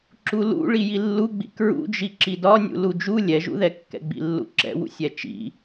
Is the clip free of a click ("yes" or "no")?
no